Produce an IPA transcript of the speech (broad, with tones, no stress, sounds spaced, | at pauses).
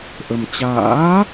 ʔ ə˧ m t͡ɕ a̰ː˧˥